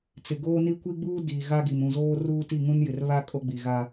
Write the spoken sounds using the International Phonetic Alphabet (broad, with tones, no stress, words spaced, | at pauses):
t͡sɪ˨ɡoː˦ni˦ kʷi˦ɡ͡buː˦ di˨ ɣa˦ɡi˨m ũ˨zoː˦ ruː˦ti˦˨ŋũ˦njɪ˨r βa˦ kʼo˦ɡ͡bi˨ɣa˦